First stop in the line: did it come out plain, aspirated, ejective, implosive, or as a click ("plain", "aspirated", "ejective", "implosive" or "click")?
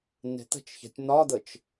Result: plain